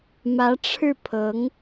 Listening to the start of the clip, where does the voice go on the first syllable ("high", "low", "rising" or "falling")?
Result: rising